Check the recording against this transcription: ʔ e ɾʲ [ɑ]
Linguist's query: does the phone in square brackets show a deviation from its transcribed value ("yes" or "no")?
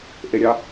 no